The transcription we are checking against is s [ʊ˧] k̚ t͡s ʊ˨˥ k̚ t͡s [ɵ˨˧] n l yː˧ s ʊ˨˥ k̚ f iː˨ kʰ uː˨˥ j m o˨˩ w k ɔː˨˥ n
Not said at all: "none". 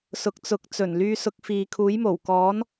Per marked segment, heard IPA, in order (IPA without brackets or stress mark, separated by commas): ʊ˨, ɵ˨˩